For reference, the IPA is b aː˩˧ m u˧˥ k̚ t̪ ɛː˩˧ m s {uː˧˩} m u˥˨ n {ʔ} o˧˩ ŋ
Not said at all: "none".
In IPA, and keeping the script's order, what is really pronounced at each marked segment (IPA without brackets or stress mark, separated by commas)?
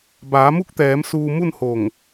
uː˧, h